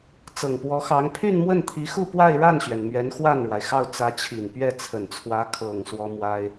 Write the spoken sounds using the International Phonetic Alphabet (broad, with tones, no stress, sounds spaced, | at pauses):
t͡s ɤ˨˩ ŋ p w ɔ˧˥ x ɑ˧˥ ŋ pʰ y˥˧ n m w ə˥˩ n t̪ʰ i˧˥ x u˥˧ p w a˥˧ ɪ̯ ɻ a˥˩ n ɕ ɥ ɛ˩ n m ɥ ɛ˧˥ n x w a˥˩ n ɻ w a˩ ɪ̯ x ɑ˥˩ ʊ̯ t͡s ä˧˥ t͡ɕʰ i˨˩ n p ɥ ɛ˥˩ t͡sʰ ə˨˩ n t͡sʰ w ä˧˥ kʰ ɤ˨˩ ŋ s w ɔ˥ m w a˥ ɪ̯